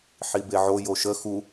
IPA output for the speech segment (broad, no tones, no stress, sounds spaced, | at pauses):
ħ i b e ʕ o j o ʃ ə x u